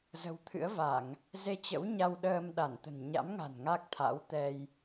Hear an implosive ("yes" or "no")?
yes